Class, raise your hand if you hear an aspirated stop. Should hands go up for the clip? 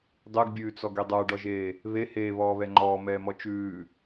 no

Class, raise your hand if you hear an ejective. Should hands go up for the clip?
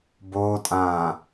yes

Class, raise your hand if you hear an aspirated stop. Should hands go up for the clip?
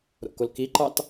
no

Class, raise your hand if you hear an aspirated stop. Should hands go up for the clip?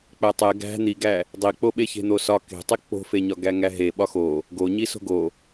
no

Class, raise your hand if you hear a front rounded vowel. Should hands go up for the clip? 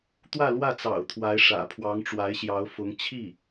no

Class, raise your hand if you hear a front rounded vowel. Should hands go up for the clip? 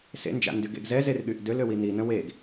yes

